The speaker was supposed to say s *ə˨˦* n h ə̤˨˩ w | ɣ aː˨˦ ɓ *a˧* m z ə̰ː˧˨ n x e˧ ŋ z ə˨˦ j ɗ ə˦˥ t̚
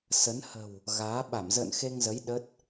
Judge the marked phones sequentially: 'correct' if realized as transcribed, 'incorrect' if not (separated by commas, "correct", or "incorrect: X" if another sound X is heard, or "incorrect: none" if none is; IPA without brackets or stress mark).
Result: correct, incorrect: a˧˩